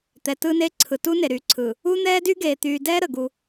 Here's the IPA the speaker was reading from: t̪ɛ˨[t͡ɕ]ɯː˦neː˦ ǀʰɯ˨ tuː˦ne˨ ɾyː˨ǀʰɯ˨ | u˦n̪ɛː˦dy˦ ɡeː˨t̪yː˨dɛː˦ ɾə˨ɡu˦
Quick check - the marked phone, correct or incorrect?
incorrect